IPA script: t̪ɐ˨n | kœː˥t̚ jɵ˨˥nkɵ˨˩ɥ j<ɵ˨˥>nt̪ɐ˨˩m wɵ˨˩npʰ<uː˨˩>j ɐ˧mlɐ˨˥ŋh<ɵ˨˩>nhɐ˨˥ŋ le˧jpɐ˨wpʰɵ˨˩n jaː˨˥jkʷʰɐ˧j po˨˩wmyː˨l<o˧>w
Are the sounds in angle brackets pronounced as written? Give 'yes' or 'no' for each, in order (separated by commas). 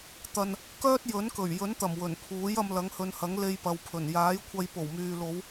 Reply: yes, no, no, no